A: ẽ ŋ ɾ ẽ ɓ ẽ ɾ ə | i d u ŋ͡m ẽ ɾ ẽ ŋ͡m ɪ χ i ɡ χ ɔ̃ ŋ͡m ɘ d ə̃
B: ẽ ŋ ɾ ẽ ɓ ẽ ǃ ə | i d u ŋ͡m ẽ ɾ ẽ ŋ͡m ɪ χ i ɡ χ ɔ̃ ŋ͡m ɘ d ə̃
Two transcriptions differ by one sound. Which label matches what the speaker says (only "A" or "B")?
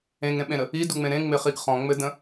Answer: A